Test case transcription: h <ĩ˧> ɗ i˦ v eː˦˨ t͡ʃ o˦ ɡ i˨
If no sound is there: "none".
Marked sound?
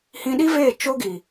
ĩ˦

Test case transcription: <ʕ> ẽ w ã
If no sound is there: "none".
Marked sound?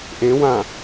ʔ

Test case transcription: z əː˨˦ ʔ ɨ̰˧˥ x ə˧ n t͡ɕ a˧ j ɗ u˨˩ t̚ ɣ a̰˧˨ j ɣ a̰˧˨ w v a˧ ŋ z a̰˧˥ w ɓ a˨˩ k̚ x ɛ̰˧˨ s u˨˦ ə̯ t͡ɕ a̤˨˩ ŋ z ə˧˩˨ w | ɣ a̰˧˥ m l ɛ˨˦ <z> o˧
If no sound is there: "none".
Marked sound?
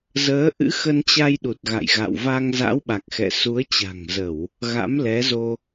z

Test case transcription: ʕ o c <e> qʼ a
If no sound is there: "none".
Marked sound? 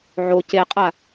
e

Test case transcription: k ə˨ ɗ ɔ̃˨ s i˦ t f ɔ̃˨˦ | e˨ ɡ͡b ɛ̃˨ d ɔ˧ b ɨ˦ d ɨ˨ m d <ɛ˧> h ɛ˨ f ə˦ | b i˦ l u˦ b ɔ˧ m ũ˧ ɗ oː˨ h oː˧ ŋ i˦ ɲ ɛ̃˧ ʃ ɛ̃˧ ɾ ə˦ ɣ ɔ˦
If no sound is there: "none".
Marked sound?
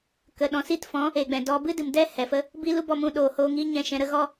ɛ˦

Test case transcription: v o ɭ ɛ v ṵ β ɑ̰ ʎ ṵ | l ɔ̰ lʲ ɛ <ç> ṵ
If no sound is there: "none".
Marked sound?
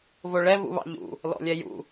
j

